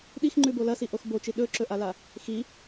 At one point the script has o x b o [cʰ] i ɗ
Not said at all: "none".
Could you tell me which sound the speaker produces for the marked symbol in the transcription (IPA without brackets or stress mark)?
t͡ʃ